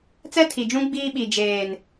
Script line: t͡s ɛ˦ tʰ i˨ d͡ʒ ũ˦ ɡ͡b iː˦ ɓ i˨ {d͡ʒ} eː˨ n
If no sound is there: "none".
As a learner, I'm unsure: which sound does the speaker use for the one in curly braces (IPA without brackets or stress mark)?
d͡ʒ